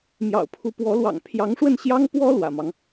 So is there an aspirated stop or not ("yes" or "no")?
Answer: yes